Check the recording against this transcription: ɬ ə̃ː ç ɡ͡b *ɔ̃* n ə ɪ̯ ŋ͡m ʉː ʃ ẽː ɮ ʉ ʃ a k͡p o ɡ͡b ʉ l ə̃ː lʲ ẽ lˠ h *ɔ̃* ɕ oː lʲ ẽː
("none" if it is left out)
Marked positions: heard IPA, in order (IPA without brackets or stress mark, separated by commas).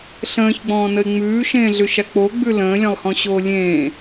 ɔ̃ː, ɔ̃